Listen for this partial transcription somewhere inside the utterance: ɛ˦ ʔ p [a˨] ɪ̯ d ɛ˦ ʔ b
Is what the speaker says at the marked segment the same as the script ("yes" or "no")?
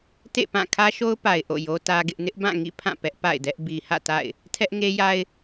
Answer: no